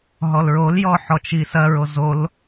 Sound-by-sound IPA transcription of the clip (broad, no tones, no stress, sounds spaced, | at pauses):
ɦ ɔ l ɹ o l j ɔ ħ ɔ t͡ʃ i s ɐ ɹ o z o l